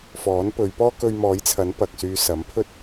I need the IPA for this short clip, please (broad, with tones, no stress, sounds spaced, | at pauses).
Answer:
f ɔː˨˥ n p ɵ˨˧ ɥ p ɔː˥ k ɵ˧ ɥ m ɔː˨˥ j t͡sʰ ɐ˨˥ n p ɐ˨ k̚ s yː˧ s ɐ˨˥ m pʰ ɵ˥ t̚